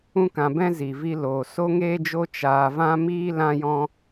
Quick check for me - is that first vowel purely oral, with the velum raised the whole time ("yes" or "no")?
no